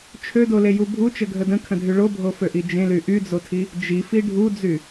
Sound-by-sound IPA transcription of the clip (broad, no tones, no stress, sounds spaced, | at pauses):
t͡ʃʰ ø d o l e j u bʱ u t͡ʃ ə ɡʱ ə d ə̃ kʰ ə̃ dʱ y ɭ o bʱ o f ø ʔ i d͡ʒ ẽ l y ʔ y d͡z o tʰ i | d͡ʒ i f i ɖʱ u d͡z y